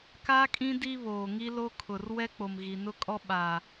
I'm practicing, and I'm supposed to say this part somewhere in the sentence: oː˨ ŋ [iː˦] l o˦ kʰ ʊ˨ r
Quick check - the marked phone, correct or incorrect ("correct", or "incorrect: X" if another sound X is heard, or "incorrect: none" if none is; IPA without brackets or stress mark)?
incorrect: i˦